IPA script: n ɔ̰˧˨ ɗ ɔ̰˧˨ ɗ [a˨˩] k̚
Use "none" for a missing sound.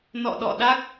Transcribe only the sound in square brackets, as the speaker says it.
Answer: a˦˥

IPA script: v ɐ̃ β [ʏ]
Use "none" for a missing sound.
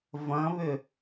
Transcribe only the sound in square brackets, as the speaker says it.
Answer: ʏ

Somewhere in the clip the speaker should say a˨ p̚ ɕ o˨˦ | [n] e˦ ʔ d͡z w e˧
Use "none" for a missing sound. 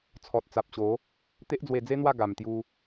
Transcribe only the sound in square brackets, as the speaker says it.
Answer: t̪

